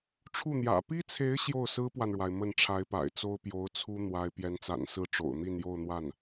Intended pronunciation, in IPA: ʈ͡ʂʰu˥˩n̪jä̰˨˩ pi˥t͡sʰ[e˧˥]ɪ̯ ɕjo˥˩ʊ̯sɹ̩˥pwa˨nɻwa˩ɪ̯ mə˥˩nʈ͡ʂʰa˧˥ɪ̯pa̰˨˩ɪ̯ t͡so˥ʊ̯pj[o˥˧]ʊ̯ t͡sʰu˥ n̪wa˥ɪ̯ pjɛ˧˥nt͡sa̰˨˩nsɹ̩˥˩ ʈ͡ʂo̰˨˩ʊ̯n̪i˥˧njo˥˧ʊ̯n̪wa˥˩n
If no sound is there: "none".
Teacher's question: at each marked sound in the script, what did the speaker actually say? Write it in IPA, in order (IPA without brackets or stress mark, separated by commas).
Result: e˧˥, o˧˥